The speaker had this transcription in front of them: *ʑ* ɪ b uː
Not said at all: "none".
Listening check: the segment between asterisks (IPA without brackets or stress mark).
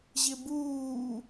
ʑ